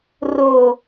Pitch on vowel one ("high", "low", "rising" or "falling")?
low